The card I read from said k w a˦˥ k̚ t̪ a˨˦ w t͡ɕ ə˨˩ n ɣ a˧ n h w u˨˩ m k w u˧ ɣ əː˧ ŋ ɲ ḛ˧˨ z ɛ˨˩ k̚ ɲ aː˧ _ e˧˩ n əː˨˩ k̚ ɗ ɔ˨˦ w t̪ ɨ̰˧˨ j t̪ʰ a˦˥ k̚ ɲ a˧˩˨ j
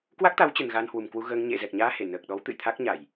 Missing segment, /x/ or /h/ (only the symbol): h